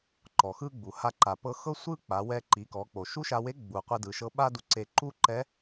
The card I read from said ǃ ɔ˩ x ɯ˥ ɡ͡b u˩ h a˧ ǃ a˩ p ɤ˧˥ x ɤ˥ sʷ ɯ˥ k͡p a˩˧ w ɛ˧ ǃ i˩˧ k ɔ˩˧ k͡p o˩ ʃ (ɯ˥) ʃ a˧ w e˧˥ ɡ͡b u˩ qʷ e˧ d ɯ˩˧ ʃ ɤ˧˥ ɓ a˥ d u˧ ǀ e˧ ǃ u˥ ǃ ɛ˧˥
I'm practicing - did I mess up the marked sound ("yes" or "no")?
yes